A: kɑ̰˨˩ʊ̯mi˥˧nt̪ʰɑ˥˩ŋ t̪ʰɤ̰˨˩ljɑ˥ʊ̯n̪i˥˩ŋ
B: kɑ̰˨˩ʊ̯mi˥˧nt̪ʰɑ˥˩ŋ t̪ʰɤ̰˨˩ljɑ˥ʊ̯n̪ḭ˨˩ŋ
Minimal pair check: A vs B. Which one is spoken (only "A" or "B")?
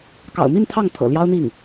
A